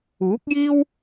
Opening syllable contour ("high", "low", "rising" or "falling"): rising